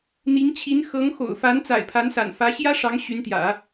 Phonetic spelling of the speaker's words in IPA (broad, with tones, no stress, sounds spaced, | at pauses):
n̪ i˧˥ ŋ t͡ɕʰ i˧˥ n x ɤ˧˥ ŋ x o̰˨˩ ʊ̯ f a˧˥ n t͡s a̰˨˩ ɪ̯ pʰ a˧˥ n s a̰˨˩ n f ä˧˥ ɕ j ä˥ ʂ ɑ˧˥ ŋ ɕ y˧˥ n t̪ j ä̰˨˩˦